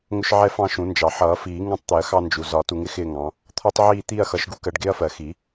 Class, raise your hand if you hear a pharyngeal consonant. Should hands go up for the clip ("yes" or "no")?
yes